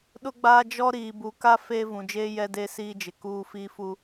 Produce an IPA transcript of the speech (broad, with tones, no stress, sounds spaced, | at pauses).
ɗ ʊ˦ ɡ͡b aː˦ d͡ʒ ɔ˦ ɾ iː˨ b u˨ k a˦ f e˦ v ũ˨ d͡ʒ eː˦ j ɛ˦ d eː˦ s iː˦ d͡ʒ ɪ˨ k uː˦ f iː˦ f u˦